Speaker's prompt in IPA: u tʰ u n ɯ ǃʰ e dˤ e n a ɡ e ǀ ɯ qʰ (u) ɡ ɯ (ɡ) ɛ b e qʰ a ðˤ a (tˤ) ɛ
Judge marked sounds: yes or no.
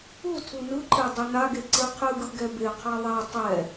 no, yes, yes

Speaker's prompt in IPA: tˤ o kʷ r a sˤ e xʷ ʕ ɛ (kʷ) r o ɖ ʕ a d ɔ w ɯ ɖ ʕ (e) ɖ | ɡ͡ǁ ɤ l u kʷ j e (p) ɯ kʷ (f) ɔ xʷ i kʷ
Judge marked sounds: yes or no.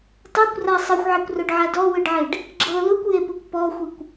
yes, yes, yes, no

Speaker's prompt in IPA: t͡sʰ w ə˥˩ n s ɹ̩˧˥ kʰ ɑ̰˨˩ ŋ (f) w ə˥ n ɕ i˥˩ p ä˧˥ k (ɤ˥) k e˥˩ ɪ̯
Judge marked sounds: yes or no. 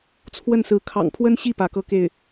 no, yes

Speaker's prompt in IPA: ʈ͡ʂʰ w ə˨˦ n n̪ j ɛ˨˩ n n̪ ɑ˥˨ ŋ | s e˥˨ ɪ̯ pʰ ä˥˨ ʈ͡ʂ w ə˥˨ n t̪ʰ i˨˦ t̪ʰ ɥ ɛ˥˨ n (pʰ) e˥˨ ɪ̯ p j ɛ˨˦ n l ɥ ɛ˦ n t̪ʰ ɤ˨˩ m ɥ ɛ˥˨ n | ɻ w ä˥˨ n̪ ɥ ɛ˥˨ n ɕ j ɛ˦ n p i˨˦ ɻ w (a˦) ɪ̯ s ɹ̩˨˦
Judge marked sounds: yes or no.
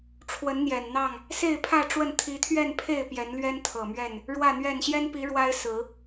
yes, yes

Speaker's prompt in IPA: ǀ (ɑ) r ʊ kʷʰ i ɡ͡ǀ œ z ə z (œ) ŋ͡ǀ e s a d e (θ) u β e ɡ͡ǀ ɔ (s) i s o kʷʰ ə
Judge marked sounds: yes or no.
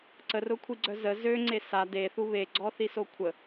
no, no, yes, no

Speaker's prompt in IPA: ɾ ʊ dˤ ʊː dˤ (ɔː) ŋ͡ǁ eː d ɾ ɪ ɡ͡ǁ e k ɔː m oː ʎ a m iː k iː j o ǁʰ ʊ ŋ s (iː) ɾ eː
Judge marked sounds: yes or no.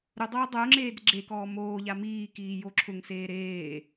no, no

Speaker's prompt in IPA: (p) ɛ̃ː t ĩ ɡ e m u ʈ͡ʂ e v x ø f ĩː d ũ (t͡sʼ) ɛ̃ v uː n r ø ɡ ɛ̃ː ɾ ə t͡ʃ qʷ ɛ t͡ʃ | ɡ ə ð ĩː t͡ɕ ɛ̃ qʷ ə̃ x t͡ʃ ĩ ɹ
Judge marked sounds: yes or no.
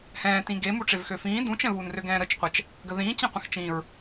no, no

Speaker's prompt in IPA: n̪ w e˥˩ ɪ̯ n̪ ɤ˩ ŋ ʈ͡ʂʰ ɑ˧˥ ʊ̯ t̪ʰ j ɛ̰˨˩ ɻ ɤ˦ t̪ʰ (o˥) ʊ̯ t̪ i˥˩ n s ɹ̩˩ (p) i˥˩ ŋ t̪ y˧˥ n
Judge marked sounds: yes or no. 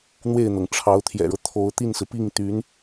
no, yes

